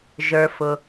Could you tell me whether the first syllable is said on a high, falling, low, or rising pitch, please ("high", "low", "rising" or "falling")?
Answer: low